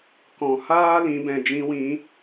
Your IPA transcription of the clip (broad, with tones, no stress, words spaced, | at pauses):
kɔ̃˨ haː˦ lĩ˨˦bɛ̃˨ d͡ʒĩ˧wĩ˨˦